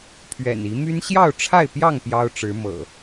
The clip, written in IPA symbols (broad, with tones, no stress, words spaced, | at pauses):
pʰɥɛ̰˨˩ni˨˦ my˦n ɕjɑ˥˨ʊ̯ʈ͡ʂʰa˥˨ɪ̯pjɑ˥˨ŋ pjɑ˦ʊ̯ʈ͡ʂɻ̩˨˦ mɤ̰˨˩